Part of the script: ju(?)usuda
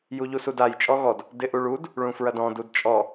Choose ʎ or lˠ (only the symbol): ʎ